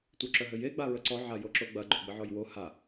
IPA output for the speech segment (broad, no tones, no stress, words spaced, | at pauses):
tʷœǁœɦɘje ɡ͡baɹəǀɔ ʕajoǁoɡ͡bɐ ɡ͡ǃoɡ͡bɘʕɔjwo ha